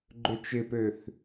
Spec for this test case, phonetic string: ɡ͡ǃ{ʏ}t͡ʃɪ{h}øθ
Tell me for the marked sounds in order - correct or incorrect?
correct, incorrect: p

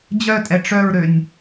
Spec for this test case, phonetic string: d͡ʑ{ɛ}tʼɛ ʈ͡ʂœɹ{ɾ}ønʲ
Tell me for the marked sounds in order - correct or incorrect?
incorrect: œ, correct

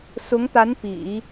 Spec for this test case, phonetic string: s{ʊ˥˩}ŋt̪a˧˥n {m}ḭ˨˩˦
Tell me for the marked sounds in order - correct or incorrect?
incorrect: ʊ˧˥, incorrect: p

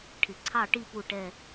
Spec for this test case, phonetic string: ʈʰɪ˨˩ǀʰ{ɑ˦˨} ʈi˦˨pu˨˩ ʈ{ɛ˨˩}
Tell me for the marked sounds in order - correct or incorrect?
correct, correct

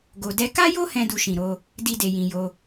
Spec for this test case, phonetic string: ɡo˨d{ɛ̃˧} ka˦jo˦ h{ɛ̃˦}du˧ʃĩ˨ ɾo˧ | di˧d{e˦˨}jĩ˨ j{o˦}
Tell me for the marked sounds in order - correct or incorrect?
incorrect: ɛ˧, correct, incorrect: e˨, incorrect: o˧

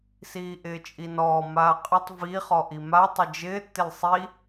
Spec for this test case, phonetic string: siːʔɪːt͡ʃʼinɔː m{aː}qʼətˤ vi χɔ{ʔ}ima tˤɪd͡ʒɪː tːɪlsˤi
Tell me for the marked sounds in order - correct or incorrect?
correct, correct

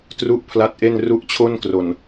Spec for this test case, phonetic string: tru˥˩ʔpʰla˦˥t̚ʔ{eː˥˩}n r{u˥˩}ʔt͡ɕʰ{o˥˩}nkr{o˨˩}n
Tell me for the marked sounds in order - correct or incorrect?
incorrect: e˥˩, incorrect: u˦˥, correct, correct

